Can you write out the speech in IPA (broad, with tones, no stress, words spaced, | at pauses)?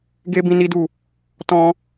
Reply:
ɡe˧ bĩ˧ni˦du˦˨ | tɔ̃˧